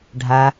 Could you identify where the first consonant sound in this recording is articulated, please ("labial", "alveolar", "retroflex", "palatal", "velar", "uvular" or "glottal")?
retroflex